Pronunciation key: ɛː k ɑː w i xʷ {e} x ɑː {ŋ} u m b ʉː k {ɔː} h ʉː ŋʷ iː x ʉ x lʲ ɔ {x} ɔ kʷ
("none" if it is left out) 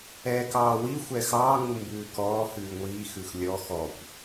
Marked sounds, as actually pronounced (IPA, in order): ɛ, ŋ, ɔː, x

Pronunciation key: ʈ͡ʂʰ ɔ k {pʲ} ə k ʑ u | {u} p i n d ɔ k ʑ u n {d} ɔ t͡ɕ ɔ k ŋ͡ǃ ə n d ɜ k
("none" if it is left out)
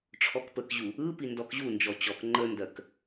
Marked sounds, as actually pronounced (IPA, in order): p, ɯ, d͡ʒ

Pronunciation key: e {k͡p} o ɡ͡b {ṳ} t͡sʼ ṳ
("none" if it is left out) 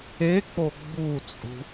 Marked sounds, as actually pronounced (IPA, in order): k͡p, u

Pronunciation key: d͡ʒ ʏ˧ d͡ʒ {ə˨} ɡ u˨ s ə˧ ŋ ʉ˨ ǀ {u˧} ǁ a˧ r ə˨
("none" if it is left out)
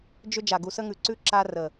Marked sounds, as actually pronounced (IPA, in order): a˨, ʉ˧

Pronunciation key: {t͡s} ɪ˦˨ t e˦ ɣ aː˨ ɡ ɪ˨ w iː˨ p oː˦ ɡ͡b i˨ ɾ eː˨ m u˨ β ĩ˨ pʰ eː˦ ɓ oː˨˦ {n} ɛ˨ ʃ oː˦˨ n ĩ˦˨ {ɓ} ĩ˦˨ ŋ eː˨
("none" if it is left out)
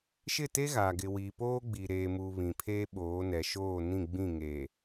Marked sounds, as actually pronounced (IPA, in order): ʃ, n, ɡ͡b

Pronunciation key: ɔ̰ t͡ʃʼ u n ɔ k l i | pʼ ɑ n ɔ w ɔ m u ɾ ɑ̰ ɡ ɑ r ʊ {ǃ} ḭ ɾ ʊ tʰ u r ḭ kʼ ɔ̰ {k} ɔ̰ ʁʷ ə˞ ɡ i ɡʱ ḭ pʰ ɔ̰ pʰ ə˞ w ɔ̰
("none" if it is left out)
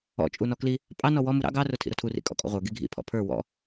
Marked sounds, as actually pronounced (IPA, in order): tʰ, kʼ

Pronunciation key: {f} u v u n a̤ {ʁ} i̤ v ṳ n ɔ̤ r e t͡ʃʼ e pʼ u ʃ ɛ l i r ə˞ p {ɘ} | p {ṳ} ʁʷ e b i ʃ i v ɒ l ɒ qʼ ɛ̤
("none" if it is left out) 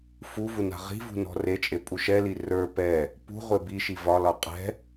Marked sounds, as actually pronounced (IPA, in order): f, ʁ, ɛ, ṳ

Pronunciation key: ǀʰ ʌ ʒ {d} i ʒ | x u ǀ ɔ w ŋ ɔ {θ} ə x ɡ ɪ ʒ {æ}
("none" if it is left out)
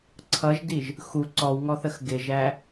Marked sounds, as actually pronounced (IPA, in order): d, θ, æ

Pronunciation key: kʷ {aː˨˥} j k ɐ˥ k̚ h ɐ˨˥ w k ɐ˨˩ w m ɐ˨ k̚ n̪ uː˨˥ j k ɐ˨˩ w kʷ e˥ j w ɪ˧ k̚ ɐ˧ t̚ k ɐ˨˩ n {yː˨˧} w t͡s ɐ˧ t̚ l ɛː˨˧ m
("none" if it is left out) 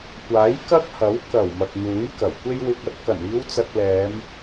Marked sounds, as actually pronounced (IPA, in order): aː˨˥, iː˨˧

